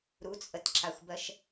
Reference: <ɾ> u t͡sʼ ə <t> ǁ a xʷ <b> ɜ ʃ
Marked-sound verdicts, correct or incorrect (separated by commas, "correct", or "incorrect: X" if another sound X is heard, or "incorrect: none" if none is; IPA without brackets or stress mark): correct, correct, correct